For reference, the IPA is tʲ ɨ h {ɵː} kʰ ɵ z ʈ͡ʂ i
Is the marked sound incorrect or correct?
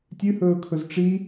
correct